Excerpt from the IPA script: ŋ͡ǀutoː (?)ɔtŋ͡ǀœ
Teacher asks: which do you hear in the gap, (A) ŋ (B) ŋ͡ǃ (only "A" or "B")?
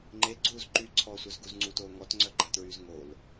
A